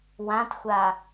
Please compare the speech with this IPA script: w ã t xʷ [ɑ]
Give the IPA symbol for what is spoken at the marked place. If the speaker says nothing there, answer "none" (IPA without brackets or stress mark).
a